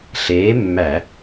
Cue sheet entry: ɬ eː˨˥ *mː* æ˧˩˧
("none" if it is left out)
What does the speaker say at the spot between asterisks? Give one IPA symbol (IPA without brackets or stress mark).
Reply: mː